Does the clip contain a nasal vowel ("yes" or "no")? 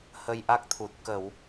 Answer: no